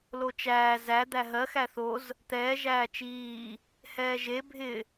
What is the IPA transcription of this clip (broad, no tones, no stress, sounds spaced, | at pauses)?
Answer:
l o t͡ʃ æː z æ d̪ æ ɦ ɜ x æ θ o z | t̪ ɛː ʒ æː t͡ʃ iː | h ɛː ʒ e bʱ ɪ